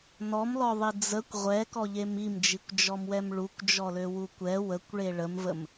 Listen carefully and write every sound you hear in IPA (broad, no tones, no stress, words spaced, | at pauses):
nɔmlɔðˤi d͡zəkʷ ʁʷɛkɔʎem imd͡ʒikʷd͡ʒɔmwɛm ɭukʷd͡ʒɔløwu kʷɛ wəkʷɭe ɭəmvəm